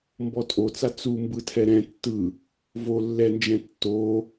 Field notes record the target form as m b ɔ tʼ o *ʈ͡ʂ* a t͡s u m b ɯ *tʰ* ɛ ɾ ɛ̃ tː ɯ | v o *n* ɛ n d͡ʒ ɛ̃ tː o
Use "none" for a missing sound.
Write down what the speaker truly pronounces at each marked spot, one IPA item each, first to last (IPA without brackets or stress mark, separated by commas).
t͡s, tʰ, lː